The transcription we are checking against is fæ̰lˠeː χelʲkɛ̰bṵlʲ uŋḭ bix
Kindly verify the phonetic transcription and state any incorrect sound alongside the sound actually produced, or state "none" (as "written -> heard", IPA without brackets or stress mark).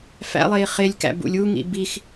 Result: ɛ̰ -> æ̰